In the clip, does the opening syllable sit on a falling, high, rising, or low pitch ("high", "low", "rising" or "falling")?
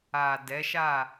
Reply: low